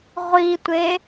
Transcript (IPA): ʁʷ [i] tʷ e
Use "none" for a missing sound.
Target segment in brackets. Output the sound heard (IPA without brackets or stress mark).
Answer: i